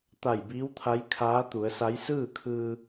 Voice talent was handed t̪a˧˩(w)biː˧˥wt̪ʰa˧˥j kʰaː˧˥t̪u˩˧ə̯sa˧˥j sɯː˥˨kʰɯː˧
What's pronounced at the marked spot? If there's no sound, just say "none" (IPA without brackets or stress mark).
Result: j